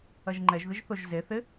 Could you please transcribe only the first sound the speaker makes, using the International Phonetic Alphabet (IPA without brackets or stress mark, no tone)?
ɐ